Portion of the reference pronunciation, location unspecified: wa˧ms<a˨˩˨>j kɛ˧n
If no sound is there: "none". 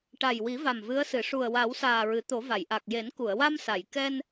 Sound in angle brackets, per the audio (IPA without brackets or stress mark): a˨˩˨